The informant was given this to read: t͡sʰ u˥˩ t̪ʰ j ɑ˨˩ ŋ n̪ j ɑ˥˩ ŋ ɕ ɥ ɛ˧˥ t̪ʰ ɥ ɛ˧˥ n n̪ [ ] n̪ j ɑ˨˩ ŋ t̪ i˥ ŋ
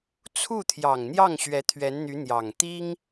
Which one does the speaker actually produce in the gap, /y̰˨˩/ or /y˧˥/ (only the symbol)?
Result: y˧˥